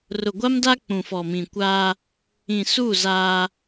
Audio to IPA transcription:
r ʊ˨ ɡʷ a˦ m d a˦ k͡p ũ˨ f ɔ˨ m ĩ˨ kʷ aː˦ | ĩ˨ s u˦˨ z aː˦

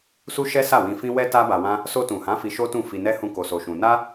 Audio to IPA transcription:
s u˦ ʃ ɛ˦ s a˦˨ w ĩ˧ f ĩ˦ w ɛ˦ t a˦ b a˧ w ã˦ | s o˧ t ũ˨ h ã˨˦ f i˧ ʃ o˦ t ũ˦˨ f i˧ n ɛ˦ h ũ˦ k o˧ s o˧ ʃ ũ˧ n a˦

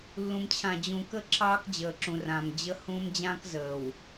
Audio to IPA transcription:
lː ũ˨ m t͡ɕʰ ã˨ d͡ʑ ũ˨ k ə˦ ǁʰ ɑː˦ k d͡ʑ əː˨ ǁ ũ˨ r ãː˨ m d͡ʑ ə˦ h ũː˦ m d͡ʑ ãː˦ k z əː˨ w

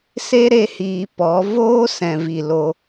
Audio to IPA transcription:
s e˦ ɾ e˧ h iː˨ p ɔ˨˦ v oː˦ s ɛ̃˨ v i˨ l o˧

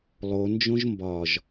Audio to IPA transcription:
lˠ o n d͡ʒ õ ʒ m b ɒ ʒ

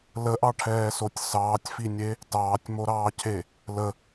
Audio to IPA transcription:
l ə ʔ ɑ ʈʰ ɛː s o tʲ s ɑː tʲ f i nʲ e | t ɑː tʲ m o ɾ ɑː cʰ e | l ə

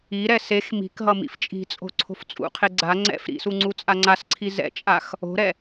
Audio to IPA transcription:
i ɾ ɛ s e x m i̤ k ɦ ʌ m ḭ f t͡ʃʼ i̤ t͡sʼ o̤ ǀʰ o̤ f t͡sʼ ṵ qʰ e ɡ͡ǀ a ŋ͡ǀ ɛ̰ f ɾ ḭ s u ŋ͡ǀ u t͡sʼ a ŋ͡ǀ a s ǀʰ i z ɛ̰ t͡ʃʼ a x | o̤ ɾ ɛ

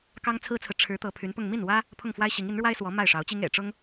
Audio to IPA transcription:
k ɑ˥ ŋ t͡sʰ ɹ̩˥ t͡sʰ ɹ̩˨ ʈ͡ʂʰ ɻ̩˧˥ t̪ ɤ˧˥ pʰ y˧˥ n p ʊ˥˧ ŋ m i˥˩ n w ä˥ | pʰ ʊ˥˩ ŋ f w a˥ ɪ̯ ɕ i˧˥ ŋ i˧˥ n ɻ w a˥ ɪ̯ s w ɔ˧˥ m a˥˩ ɪ̯ ʂ ɑ˧˥ ʊ̯ t͡ɕ i˥ ŋ ḛ˨˩ ɪ̯ ʈ͡ʂ ʊ˥ ŋ

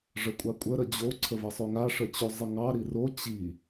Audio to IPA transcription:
ʐ ə kʷʼ a kʷʼ ə ɾ ə d͡ʑ o ǀʰ ə v ə sˤ o ŋ a ʂ ə t͡ɕ o zˤ ə ŋ ɑ ɾ i r o t͡ɕ i

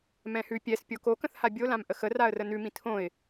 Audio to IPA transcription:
m ɛ̃ h ʉ pʲ ɛ s pʲ o k o k ə̃ θ h a bʲ o l ã m ʔ ə x ə r a ə̯ r ə n ʉ m ĩ tʰ õ ɪ̯

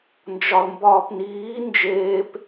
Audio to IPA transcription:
n d͡ʒ ɒ l m b ɒː p n iː n d͡ʒ eː p

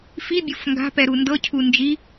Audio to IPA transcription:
f i bʲ o f ŋ ɡ a̤ p ɛ ɾ u n d ɤ cʰ u n d͡ʒ i

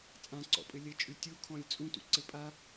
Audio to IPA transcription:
t͡sʼ ã ǀ ɔ̰ pʼ ɘ lʲ ɘ t͡ʃʼ ʉ tʲ u kʰ ɔ̃ lʲ t͡sʼ ũ t ṵ ǀ ɘ pʼ a

